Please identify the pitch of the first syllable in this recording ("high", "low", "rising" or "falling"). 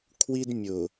high